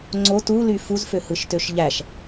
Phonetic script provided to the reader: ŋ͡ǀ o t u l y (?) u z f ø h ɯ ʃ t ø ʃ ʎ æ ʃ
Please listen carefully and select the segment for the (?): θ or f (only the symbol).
f